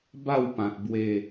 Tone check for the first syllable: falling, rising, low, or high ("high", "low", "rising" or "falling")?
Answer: falling